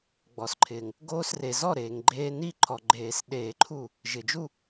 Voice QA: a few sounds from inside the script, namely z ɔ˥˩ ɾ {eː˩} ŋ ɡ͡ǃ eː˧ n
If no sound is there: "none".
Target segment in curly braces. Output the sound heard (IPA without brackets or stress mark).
eː˩